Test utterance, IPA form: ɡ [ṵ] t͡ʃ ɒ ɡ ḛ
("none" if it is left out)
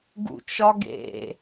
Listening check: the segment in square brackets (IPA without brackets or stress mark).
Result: ṵ